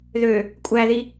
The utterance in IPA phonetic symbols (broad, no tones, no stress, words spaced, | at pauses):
ðø | kʷʼæði